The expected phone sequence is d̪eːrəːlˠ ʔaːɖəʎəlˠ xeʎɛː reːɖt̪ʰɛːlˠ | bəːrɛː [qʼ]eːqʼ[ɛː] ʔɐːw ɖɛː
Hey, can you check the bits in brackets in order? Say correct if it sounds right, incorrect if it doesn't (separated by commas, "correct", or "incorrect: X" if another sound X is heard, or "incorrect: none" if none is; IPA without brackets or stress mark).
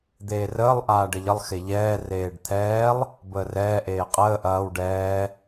incorrect: ʔ, incorrect: əː